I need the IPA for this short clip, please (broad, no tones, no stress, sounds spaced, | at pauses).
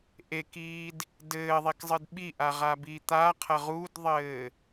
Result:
ʔ e k iː d | d ɘː ðˤ i k zˤ ɨ d ɓ i ʔ a ʁ a b iː t̪ a qʰ ɐ ʁ u d ðˤ ɘː